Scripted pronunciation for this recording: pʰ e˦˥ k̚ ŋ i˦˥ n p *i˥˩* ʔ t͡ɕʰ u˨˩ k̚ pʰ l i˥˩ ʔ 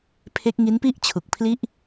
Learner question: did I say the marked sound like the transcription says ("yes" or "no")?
yes